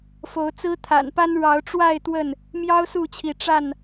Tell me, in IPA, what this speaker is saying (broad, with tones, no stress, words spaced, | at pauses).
fo˨˦ʊ̯t͡sɹ̩˦ t̪ʰa̰˨˩npa˦n ɻɑ˨˦ʊ̯ʈ͡ʂwa˥˨ɪ̯ t̪wə˥˨n | mjɑ˦ʊ̯ su˥˨t͡ɕʰi˨˦ ʈ͡ʂa˥˨n